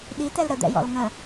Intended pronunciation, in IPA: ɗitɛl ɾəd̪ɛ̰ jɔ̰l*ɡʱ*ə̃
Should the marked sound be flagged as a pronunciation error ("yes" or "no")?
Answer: yes